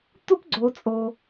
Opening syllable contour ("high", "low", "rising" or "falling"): high